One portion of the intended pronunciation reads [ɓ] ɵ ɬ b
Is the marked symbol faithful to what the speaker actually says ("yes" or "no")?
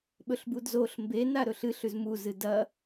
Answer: yes